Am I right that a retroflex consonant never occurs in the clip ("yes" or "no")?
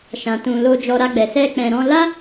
yes